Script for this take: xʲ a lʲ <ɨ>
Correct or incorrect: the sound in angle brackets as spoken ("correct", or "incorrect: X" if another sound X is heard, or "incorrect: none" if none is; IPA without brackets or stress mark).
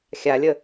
incorrect: ə